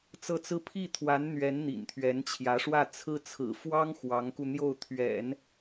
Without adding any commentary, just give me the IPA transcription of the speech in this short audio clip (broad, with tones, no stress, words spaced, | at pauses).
t͡sɤ˥˩t͡sɹ̩˥ pʰi˥˩t̪ʰwa˧˥n n̪ɥɛ˧˥n n̪ḭ˨˩nt̪ʰɥɛ˧˥nt͡ɕʰjä˧˥ʂwä˥˩ t͡sʰɹ̩˥t͡sʰɹ̩˨˩ fwɑ˥ŋ xwɑ˧˥ŋku˧n̪jo˥˩ʊ̯ t̪ʰɥɛ̰˨˩˦n